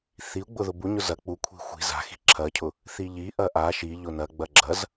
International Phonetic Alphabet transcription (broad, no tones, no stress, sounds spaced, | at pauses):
θ i u̯ ɡ͡b ʊ ð ʊ b u ɲ ʊ z ɐ k͡p u kʷʰ i̤ xʷ i̤ z a̤ x i̤ ǁʰ ɐ cʰ ʊ | θ i ʎ i ʔ ɐ ʔ a ʃ i ʎ ʊ n ɐ ɡ͡b ɐ ɡ͡ǁ ɐ z